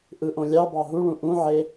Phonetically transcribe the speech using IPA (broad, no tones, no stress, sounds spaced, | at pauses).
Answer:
ʔ ɯ ʔ õ lʲ ɑ b ɑ ɦ u ɭ ũ ʔ ũ ʕ e